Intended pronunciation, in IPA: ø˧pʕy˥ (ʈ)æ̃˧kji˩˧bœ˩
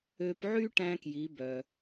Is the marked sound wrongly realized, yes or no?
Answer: no